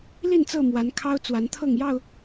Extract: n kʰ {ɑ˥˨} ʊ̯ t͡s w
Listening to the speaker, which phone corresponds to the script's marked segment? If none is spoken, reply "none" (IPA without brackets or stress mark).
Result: ɑ˦